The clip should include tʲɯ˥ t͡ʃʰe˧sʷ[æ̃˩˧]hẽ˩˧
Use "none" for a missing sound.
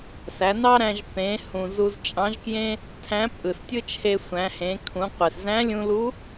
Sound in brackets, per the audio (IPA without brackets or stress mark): æ̃˩˧